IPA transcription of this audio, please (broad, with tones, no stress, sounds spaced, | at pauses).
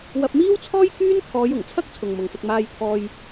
w ɐ˧ p̚ m iː˥ w t͡sʰ ɔː˥ j k yː˥ n t̪ʰ ɔː˨˧ j ʊ˨˩ ŋ t͡sʰ ɐ˥ k̚ t͡sʰ ʊ˨ ŋ m ʊ˨ ŋ s ɪ˧ k̚ m aː˧ j t̪ʰ ɔː˧ j